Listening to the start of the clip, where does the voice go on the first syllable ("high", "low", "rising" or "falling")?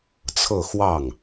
falling